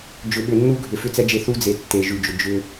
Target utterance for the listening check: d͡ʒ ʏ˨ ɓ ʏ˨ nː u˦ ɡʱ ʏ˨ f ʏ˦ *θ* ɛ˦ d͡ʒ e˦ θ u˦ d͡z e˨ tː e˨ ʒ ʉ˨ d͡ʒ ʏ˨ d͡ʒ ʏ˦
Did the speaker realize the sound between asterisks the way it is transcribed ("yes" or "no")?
no